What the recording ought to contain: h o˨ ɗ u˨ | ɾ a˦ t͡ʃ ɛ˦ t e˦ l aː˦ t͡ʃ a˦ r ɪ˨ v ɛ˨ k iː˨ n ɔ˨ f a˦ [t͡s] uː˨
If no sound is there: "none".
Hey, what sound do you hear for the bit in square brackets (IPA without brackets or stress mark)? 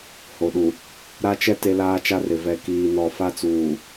t͡s